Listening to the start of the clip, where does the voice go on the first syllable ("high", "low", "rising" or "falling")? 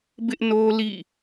high